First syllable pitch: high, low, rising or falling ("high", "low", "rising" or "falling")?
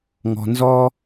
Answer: low